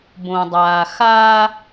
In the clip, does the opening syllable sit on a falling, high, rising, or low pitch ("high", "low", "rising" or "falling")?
low